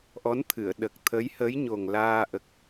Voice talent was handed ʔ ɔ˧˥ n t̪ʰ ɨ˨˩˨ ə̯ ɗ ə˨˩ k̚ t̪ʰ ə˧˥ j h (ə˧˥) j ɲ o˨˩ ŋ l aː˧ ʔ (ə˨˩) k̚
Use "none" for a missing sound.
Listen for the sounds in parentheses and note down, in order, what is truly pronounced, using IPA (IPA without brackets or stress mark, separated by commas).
ə˧˥, ə˨˩